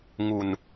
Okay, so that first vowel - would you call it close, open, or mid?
close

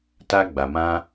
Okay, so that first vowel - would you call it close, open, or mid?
open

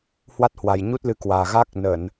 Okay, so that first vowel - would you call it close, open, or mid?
open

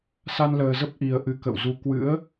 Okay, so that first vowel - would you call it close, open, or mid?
open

